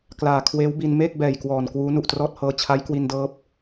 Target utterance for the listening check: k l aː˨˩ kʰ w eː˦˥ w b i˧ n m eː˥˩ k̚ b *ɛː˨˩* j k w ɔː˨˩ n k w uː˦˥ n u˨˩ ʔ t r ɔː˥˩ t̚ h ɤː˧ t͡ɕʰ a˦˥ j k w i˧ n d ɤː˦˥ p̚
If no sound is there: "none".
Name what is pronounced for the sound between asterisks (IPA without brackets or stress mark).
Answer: ɛː˨˩